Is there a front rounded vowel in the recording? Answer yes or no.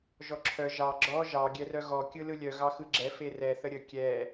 yes